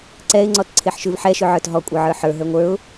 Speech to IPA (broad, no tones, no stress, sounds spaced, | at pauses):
ǀ ɛ ɪ̯ ŋ͡ǀ ɔ t ǀʰ e ħ ʃ ʉ v ħ ɛ ʃ ʉ ʕ ə˞ t ɦ ɔ kʷʼ ə˞ ʕ ə˞ ħ ə˞ ɦ ə˞ ŋʷ ə˞ ʊ̯